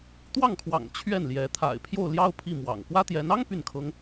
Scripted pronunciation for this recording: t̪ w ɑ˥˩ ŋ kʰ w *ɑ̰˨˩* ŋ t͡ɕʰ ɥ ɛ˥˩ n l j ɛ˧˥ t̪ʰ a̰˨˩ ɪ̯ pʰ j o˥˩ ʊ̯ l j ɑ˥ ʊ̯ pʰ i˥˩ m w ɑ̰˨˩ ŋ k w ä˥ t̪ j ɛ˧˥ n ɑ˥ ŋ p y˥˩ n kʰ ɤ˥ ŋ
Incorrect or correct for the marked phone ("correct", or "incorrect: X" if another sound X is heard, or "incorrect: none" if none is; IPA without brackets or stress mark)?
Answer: correct